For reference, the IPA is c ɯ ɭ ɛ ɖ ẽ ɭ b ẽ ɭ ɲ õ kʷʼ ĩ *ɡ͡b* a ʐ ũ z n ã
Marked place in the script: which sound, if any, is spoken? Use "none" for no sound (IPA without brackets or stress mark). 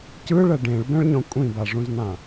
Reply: b